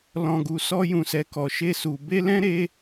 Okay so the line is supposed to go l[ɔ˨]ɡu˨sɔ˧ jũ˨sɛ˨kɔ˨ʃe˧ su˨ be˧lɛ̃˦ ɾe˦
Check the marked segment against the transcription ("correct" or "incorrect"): incorrect